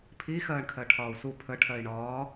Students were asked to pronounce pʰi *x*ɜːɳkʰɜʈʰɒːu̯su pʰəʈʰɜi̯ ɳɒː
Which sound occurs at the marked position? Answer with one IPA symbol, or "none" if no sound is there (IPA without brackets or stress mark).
x